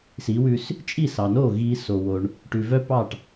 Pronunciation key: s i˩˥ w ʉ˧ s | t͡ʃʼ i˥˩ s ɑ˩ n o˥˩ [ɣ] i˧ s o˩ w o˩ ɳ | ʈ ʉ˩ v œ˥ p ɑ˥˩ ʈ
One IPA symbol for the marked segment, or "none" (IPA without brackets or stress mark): ɣ